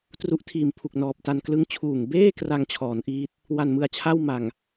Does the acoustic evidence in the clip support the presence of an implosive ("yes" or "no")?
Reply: no